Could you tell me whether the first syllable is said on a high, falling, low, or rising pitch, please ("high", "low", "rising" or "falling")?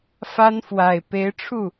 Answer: high